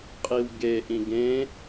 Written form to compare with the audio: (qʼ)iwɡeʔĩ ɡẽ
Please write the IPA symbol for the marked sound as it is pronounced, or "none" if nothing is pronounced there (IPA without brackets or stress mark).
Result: qʼ